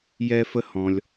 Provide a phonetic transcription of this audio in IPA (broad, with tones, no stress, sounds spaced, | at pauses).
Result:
j ɛ˧ f ə˧ h ɔ̃˩ lʲ